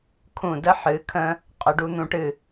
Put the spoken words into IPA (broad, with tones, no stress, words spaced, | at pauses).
kʰũ˧˩də˥ ħɨ˩˧kʰə̃˧ | qʼə˩˧ɖu˧n̪ũ˧ʈɨ˧˩